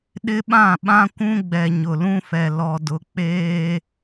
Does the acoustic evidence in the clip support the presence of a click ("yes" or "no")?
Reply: no